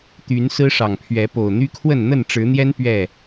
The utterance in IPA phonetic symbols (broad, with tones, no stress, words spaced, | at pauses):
t̪y˨˦n sɹ̩˦ʂɑ˨˩ŋpʰɥɛ˨˦ po˨˩ʊ̯n̪y˦kʰwə˥˨n n̪ə˥˨nʈ͡ʂɻ̩˨˦n̪jɛ˦n pɥɛ˥˨